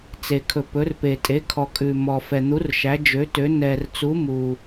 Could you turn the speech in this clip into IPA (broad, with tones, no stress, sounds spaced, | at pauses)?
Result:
t͡s e˩ kʰ ɵ˩ p ɵ˩˧ r p e˩ tʼ e˩˧ kʰ ɔ˩ kʼ ʉ˩ m ɔ˩ f ɛ˩ n̪ u˩˧ r ʃ æ˩˧ d͡ʒ ø˩˧ t ø˩˧ n ɛ˩ r t͡s u˩˧ m u˩